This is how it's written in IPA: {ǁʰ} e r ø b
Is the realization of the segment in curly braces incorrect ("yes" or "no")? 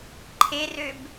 yes